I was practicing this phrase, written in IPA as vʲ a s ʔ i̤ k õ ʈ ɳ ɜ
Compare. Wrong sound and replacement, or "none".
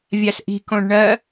ʈ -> ɖ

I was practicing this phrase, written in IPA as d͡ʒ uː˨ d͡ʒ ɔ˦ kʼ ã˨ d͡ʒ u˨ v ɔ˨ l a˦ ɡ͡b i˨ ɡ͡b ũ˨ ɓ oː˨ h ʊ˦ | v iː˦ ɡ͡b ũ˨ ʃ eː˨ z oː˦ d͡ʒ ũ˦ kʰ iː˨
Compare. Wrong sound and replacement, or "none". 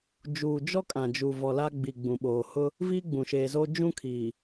none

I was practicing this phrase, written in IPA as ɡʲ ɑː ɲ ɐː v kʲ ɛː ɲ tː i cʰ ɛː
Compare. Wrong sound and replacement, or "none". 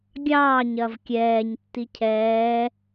none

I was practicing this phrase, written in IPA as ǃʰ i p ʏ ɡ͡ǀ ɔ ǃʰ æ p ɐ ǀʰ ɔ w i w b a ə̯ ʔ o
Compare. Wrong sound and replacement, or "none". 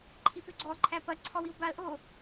none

